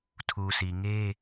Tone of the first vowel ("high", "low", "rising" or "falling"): low